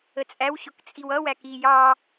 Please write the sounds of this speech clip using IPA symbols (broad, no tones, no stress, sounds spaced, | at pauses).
ə t͡sʼ æ w ɕ ʊ k t͡sʼ i w ʌ w æ k i j ɑ